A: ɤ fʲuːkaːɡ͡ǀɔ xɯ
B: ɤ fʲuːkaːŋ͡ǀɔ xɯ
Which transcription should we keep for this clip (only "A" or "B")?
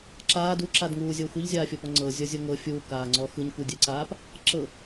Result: B